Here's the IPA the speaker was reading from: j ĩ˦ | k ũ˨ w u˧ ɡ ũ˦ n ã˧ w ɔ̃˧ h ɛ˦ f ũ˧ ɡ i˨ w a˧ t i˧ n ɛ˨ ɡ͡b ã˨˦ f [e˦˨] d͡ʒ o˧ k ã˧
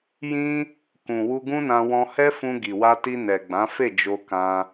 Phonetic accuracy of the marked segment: correct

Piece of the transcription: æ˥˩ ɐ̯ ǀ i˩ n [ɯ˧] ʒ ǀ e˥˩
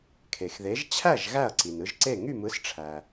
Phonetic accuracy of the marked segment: correct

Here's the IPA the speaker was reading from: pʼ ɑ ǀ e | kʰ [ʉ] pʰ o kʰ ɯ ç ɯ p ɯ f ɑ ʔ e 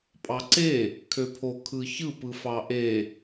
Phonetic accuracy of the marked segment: incorrect: ø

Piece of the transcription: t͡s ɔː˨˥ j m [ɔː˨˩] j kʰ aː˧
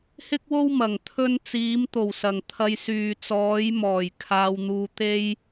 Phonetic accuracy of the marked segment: correct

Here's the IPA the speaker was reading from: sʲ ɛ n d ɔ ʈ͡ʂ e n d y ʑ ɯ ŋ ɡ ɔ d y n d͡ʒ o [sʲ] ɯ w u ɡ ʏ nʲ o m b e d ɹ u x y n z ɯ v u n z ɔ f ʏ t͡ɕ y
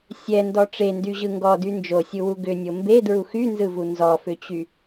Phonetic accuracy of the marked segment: correct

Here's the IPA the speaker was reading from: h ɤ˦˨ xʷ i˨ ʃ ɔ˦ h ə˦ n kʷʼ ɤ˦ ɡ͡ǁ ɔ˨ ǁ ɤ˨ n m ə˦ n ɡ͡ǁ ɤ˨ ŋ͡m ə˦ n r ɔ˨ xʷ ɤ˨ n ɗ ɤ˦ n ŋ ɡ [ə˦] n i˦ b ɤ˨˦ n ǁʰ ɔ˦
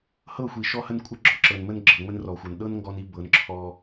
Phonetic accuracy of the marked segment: incorrect: ɔ˦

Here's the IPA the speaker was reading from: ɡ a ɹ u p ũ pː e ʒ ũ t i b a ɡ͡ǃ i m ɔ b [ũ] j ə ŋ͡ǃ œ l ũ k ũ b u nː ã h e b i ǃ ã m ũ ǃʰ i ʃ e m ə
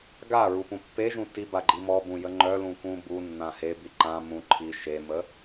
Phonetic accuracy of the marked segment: correct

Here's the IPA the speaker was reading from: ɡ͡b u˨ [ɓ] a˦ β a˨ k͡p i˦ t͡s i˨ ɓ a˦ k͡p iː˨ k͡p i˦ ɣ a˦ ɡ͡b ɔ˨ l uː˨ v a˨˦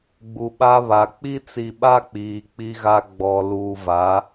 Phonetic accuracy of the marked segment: correct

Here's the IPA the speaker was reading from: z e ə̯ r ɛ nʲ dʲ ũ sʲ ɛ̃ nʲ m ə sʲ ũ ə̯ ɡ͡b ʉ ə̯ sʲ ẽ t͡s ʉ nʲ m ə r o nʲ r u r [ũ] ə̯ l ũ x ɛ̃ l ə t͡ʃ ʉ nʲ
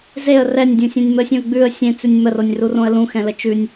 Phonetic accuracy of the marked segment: incorrect: õ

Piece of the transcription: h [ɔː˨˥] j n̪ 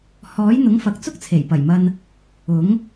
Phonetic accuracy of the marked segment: correct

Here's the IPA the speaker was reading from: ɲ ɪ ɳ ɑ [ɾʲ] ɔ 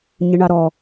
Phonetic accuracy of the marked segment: incorrect: ɾ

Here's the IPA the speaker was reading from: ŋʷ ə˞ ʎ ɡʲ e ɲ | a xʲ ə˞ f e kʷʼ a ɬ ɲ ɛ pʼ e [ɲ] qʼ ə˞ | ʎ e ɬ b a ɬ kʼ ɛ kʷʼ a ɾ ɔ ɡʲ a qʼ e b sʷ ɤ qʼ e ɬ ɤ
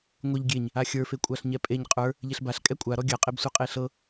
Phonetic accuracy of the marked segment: correct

